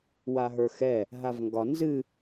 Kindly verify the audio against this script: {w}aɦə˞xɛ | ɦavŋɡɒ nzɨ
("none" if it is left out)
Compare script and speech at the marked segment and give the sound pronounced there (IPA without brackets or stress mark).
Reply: w